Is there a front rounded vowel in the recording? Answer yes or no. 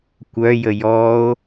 yes